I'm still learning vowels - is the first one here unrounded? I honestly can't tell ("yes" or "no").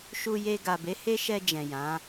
no